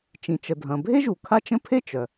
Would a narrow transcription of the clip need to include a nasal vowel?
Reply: yes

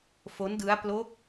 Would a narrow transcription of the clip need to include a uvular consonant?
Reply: no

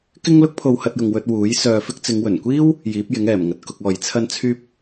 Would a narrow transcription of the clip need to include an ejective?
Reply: no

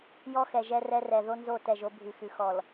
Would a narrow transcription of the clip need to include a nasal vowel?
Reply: no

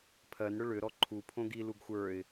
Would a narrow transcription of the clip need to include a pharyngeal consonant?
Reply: no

